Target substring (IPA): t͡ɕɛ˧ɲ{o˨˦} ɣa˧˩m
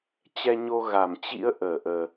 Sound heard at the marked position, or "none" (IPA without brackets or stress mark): o˧